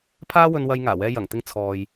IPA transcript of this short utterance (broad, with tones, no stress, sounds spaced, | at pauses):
pʰ aː˥ w ɵ˧ n w ɐ˧ j ŋ aː˨˩ w ɛː˧ j ɐ˨˩ ŋ t̪ ɪ˧ ŋ t͡sʰ ɔː˨ j